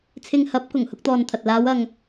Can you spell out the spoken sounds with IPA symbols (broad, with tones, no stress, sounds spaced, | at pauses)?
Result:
t͡sʰ ɪ˧ ŋ h ɐ˨˥ p̚ k ʊ˨˩ ŋ h ʊ˧ k̚ t̪ ɔː˨ n t̪ʰ ɐ˨ t̚ l aː˨˧ w ɐ˨ ŋ